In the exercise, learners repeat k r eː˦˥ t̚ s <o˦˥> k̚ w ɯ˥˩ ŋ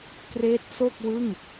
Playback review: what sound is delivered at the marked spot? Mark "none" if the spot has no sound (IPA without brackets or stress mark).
o˥˩